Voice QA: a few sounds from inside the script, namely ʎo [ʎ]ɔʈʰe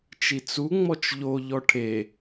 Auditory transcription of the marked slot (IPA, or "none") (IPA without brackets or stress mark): ʎ